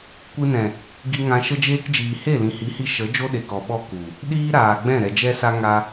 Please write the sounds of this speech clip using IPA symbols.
kʷɨ˧nɛ̃˨ | ɡi˧ŋã˧ ʃə˧d͡ʒeː˧kd͡ʒiː˨ he˦˨lĩ˨hi˨˦hi˧ ʃə˨˦ d͡ʒo˦ɗe˨kɔ˨ ɓɔ˧ ku˨ | ɗiː˦ɾaː˨ɡ͡bɛ̃˦˨ ɾɛ˨d͡ʒɛ˧sa˧ ŋa˧

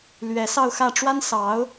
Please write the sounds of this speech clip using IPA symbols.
lɥɛ˧˥sɑ˥˧ʊ̯xä˥˩ ʈ͡ʂwa˥n sɑ˧˥ʊ̯

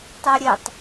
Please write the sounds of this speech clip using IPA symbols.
tˤɛɾʲetˤ

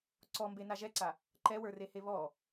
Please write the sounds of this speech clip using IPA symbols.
ǀɔmbena ʒɛǀa | ǃɛwə˞rehe βɔ

